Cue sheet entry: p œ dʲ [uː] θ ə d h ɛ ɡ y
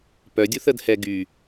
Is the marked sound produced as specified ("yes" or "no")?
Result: no